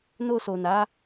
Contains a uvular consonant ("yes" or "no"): no